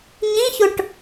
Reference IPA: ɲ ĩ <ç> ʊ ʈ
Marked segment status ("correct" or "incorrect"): correct